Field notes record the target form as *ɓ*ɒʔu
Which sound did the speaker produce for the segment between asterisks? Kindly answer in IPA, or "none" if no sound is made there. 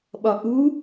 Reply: ɓ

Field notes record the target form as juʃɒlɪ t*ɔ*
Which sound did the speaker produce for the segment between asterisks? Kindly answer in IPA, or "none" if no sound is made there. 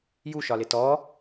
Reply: ɔ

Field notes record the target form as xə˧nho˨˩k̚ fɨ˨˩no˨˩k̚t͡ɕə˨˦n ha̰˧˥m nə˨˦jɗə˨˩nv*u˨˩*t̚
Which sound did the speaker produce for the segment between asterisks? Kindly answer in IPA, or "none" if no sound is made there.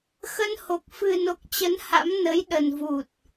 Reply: u˨˩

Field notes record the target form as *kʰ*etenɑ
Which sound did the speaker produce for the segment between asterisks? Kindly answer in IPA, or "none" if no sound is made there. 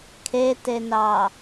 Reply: kʰ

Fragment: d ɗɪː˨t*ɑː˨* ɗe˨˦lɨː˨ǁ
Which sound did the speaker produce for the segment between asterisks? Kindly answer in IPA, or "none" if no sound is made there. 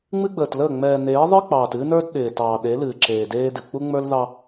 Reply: ɑː˨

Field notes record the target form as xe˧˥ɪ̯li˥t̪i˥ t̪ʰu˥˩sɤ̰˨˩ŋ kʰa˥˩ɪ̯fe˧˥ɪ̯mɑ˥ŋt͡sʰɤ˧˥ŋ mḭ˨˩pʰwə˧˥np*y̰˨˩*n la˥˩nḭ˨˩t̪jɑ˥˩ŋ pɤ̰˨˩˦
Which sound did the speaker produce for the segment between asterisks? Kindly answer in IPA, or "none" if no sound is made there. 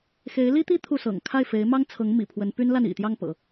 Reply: y˥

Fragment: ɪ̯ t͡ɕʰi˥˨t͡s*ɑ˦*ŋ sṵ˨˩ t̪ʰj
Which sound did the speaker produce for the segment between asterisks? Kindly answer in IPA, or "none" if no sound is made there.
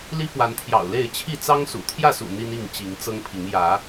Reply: ɑ˦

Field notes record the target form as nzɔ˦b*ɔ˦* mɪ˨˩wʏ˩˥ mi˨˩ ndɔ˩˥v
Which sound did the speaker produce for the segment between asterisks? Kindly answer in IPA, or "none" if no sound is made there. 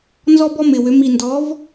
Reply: ɔ˦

